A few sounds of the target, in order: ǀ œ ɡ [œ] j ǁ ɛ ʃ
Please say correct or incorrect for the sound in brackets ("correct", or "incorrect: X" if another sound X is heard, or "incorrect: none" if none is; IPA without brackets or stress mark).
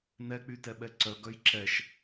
correct